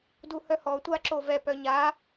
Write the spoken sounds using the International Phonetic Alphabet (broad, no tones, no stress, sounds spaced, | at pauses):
d u h œ h ɔ tʷ a ǁ o v ɛ p œ ɲ a